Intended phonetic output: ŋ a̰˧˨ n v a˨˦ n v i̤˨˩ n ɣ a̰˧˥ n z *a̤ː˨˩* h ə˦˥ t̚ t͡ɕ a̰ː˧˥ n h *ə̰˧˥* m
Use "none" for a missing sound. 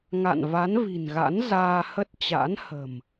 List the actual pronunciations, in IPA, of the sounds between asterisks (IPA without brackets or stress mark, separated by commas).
aː˧, ə̤˨˩